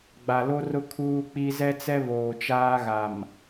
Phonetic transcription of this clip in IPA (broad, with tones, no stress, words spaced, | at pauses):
ɡ͡ba˨lo˦rʊ˦ kʰuː˦k͡pi˦ zɛ˦t͡sɛ˦ βoː˨t͡ʃaː˦ɣa˨m